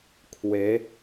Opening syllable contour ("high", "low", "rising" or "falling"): rising